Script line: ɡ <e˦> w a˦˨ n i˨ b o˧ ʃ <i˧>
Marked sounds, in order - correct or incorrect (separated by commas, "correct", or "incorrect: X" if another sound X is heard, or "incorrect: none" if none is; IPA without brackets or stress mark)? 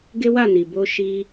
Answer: correct, correct